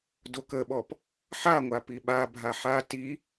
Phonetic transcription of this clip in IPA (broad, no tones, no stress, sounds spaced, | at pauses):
d o k ə ɓ ɔ p | ħ a ŋʷ a p i ɓ a bʱ a ħ a t i